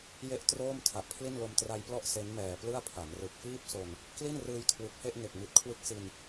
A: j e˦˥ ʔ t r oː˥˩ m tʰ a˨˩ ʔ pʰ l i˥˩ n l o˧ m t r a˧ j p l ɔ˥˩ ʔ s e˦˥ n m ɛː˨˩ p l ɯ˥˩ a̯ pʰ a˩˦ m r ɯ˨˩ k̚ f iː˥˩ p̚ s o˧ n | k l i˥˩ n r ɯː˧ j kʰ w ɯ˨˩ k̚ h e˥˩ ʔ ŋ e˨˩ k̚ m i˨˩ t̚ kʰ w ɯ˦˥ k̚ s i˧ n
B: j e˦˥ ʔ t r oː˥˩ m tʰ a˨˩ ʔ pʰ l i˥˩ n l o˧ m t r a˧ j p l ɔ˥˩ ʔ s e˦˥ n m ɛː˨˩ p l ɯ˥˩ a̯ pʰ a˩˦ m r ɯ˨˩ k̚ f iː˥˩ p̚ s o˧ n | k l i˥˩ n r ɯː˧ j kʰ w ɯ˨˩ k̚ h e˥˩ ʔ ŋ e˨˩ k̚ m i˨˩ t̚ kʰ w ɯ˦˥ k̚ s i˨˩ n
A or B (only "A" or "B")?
A